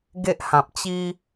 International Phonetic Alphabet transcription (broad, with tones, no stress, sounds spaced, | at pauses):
ɡ e˦ ʔ h ã˨ p̚ t͡ɕ i˦